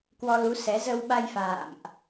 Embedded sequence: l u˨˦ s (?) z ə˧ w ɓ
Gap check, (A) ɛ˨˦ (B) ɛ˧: A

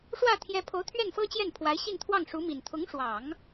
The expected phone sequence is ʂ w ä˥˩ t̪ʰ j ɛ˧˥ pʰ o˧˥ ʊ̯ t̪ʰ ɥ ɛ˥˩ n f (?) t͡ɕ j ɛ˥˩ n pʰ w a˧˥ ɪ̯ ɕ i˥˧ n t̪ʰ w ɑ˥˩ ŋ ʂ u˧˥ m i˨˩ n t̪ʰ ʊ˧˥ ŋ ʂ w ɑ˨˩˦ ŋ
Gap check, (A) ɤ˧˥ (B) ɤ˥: B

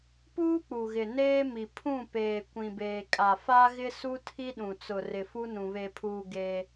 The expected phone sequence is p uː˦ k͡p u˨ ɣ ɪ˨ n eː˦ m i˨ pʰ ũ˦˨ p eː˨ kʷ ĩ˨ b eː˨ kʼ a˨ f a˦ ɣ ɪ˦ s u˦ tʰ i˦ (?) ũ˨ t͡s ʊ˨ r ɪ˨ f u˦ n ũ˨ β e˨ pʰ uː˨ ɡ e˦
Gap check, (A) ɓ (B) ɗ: B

